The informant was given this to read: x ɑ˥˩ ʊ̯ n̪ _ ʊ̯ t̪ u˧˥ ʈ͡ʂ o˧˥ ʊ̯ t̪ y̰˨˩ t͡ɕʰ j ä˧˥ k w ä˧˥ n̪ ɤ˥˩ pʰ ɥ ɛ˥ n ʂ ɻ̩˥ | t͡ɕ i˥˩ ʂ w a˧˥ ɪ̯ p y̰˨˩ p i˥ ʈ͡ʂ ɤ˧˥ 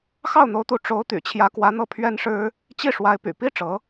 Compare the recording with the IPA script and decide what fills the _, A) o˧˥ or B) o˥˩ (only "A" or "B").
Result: A